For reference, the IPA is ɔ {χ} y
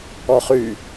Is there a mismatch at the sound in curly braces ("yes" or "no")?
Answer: no